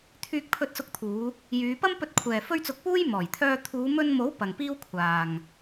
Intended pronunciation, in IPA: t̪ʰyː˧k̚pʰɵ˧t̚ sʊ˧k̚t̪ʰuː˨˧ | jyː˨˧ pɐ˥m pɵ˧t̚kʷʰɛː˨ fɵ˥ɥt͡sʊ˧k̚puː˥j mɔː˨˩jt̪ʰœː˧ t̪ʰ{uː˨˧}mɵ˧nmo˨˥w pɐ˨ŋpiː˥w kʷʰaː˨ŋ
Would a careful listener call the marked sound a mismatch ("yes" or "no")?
no